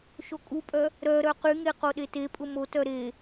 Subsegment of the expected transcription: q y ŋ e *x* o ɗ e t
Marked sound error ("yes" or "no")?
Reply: yes